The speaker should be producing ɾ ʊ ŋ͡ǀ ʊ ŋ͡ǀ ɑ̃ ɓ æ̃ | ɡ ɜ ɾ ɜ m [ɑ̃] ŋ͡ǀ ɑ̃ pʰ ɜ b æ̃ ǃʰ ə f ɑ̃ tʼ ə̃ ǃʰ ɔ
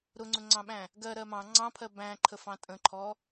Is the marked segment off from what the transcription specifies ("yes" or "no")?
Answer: no